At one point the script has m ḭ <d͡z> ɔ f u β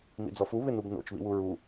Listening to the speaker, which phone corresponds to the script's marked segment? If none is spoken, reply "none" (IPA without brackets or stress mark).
d͡z